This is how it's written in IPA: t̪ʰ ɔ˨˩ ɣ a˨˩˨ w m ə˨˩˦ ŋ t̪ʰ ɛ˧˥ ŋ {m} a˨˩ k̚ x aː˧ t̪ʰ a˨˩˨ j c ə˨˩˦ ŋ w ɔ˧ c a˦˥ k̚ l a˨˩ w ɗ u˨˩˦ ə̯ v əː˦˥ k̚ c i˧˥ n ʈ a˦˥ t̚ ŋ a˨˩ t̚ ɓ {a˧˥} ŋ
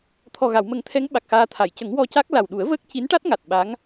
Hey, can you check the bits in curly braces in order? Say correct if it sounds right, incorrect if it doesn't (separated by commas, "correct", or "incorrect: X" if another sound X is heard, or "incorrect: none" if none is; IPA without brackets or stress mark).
incorrect: ɓ, correct